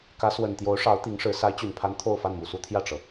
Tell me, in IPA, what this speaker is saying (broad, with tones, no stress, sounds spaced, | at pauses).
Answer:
k ä˧˥ s w ə˨˩ n t̪ j o˧˥ ʊ̯ ʂ ɑ˧˥ ʊ̯ t̪ i˧˥ ŋ ʂ ɻ̩˧˥ s a˧˥ ɪ̯ t͡ɕ y˨˩ n pʰ a˧˥ n t̪ʰ o˥˧ ʊ̯ f a˥˩ n m u˨˩ s u˥ t̪ʰ j ä˥˩ ʈ͡ʂ ɤ˩